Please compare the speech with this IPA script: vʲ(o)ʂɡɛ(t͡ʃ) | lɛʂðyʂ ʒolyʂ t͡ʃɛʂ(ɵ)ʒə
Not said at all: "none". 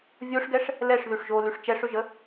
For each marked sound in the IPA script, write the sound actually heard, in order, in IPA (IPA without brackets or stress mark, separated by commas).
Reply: o, ʂ, ɵ